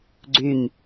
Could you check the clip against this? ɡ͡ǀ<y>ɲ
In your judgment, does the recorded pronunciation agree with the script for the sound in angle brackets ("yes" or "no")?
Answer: yes